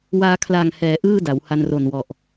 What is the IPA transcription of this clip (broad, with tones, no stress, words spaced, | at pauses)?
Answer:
waː˧kʰla˨˩ŋ hɛː˩˦ ʔɯː˥˩da˩˦wha˧n ro˨˩nwɔ˨˩ʔ